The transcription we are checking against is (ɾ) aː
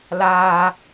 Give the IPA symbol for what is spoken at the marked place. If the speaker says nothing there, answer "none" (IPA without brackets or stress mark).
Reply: l